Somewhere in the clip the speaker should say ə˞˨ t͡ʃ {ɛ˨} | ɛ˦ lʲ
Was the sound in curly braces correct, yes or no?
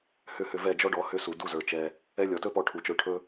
no